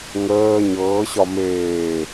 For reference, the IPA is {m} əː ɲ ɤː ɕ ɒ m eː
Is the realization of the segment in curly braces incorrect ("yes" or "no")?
yes